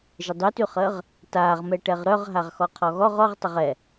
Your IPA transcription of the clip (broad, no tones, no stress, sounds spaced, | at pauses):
ʒ ə dˤ y t y χ əː ʁ | t aː ʁ m ɛ ʈ ɛ ʁ ɾ œ ʁ ɦ a ʁ x ɔ qʰ ɔ ɣ ɔ ʁ ɔ ʁ tˤ ə ʁ ɛ